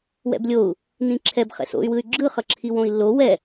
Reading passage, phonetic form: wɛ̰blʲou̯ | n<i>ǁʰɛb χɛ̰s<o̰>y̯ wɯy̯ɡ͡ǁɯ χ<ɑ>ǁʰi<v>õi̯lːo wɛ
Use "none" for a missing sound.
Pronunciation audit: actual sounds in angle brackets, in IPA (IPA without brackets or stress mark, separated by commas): ĩ, o̰, ʌ, w